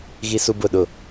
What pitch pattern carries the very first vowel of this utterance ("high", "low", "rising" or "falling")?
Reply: high